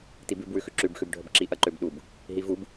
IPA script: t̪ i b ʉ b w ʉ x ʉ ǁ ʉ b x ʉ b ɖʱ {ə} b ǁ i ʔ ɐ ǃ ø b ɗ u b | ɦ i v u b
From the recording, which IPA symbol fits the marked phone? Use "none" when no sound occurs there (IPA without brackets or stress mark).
ə